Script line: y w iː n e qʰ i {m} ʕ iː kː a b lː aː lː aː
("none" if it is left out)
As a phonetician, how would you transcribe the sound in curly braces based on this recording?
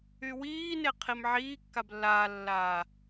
m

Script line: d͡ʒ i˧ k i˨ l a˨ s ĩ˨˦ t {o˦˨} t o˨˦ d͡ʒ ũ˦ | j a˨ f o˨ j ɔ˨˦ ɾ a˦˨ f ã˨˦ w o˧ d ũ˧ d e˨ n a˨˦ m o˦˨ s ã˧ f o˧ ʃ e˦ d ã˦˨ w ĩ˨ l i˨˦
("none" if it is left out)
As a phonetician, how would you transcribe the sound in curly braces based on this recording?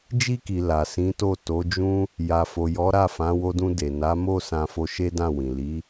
o˦˨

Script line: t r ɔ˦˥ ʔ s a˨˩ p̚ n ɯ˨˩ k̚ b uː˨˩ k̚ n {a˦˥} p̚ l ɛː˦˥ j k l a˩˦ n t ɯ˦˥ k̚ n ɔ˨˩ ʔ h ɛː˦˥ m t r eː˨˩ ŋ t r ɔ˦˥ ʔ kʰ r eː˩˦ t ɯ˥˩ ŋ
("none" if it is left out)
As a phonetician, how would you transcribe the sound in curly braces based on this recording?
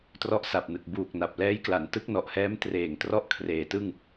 a˨˩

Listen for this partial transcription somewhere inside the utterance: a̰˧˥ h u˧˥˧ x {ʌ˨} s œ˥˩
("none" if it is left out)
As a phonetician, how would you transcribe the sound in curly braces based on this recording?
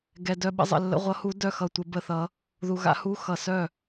ʌ˨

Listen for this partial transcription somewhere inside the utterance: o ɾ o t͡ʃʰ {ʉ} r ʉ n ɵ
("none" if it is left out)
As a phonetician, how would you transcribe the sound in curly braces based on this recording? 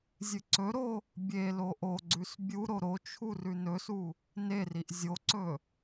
u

